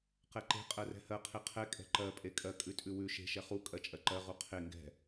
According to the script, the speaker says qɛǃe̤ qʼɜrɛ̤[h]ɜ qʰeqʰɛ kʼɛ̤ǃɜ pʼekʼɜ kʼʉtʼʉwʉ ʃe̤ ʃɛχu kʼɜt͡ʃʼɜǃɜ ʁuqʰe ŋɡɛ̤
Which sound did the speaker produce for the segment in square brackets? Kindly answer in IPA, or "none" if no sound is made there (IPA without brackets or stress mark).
h